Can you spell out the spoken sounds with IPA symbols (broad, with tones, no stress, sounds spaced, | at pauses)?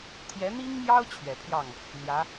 t̪ʰ j ɛ˧˥ n̪ i˥ ŋ m j ɑ˥ ʊ̯ t͡ɕʰ ɥ ɛ˨˩ pʰ j ɑ˥˩ ŋ | n̪ j ä˧˥